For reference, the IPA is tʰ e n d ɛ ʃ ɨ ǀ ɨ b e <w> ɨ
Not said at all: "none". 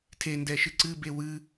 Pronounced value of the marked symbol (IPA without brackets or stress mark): w